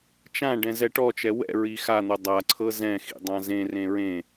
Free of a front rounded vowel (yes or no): yes